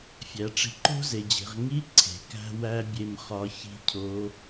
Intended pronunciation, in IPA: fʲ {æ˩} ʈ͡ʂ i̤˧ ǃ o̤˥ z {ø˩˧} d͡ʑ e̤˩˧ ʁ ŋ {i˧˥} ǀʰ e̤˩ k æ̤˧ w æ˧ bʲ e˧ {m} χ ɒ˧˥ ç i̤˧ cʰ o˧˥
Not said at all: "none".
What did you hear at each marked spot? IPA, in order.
æ˩˧, e˩˧, i˧˥, m

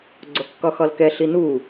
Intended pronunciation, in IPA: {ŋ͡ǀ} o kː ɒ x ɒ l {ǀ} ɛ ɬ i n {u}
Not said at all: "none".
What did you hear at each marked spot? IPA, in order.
ɡ͡ǀ, k, u

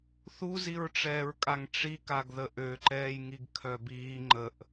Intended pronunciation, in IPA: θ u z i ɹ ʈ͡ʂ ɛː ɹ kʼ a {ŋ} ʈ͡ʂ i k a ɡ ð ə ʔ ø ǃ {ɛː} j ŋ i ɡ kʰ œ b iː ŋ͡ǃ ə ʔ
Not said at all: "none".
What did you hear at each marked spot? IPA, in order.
ŋ, ɛː

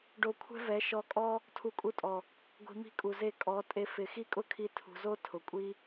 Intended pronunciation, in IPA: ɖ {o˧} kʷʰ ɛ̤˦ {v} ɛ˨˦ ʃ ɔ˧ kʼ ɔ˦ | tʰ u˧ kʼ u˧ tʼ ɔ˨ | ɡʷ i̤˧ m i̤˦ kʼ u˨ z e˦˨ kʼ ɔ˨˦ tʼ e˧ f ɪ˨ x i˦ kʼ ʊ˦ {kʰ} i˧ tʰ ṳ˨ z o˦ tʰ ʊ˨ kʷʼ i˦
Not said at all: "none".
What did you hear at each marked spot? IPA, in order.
o˧, v, kʰ

